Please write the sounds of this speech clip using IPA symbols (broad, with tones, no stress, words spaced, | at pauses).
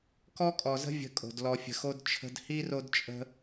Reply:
kɔ˦kʼɔ˨zə̤˦ vʲə̤˧kʼo̤˨d lɔ˨fʲə̤˨xo˧d t͡ʃʰə̤˧dhi˦ ro˦dt͡ʃʼə̤˦